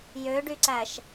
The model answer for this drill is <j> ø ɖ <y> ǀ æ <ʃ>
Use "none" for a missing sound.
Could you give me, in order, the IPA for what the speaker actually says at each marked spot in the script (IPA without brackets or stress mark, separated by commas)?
j, y, ʃ